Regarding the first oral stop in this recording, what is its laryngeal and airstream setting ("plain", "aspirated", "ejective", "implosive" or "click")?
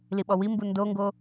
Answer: implosive